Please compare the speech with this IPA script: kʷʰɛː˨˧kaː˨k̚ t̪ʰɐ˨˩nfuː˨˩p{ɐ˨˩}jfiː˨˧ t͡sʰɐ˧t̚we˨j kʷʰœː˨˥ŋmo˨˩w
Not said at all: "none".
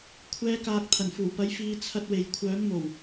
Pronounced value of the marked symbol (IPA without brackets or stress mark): ɐ˨˥